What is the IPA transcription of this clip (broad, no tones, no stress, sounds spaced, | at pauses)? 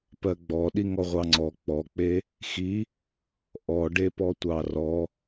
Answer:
p ɜ ɡ͡b ɔ ɗ i ŋ ɔ ʁʷ ɑ ŋ͡ǀ ɔ k͡p ɔ k͡p e | x i | ʔ ɔ ɖ e p ɔ tʷ ɑ r ɔ